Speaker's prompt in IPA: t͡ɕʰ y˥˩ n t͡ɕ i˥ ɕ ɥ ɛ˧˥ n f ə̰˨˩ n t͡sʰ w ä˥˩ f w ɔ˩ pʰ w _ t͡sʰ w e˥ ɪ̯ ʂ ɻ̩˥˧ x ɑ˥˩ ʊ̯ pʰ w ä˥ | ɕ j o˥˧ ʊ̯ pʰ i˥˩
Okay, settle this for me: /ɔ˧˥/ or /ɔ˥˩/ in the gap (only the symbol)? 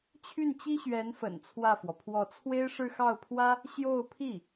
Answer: ɔ˥˩